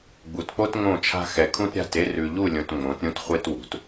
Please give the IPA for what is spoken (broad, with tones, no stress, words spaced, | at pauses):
ɡ͡bu˨tk͡po˦t ŋõ˦˨t͡ʃʰa̤˦ xɛ˨kʰũ˦tɾʲa̤˦˨te˦ rʉ˨ʎu˦˨lʲõ˨t ŋ͡mõ˨˦tɾʲũ˦tχʷe˦twṳ˨˦t